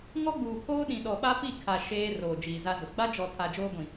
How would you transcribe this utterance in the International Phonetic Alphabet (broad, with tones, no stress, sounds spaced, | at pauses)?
ŋ ɔ˦ ɡ͡b uː˨ pʰ oː˦ ɗ ĩ˨ ɗ ɔ˨ ɓ a˦ p i˦˨ kʰ a˨ ʃ eː˦ r oː˨ d͡ʒ iː˨ z a˦ z ʊ˨ ɡ͡b a˦ d͡ʒ ɔ˨ tʰ a˨ d͡ʒ oː˦ ɡʷ ĩ˨